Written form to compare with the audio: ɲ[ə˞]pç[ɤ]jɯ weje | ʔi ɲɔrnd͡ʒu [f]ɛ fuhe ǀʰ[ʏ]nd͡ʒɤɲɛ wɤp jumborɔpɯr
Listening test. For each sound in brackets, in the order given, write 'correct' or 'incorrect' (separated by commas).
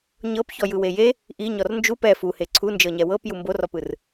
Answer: incorrect, incorrect, incorrect, incorrect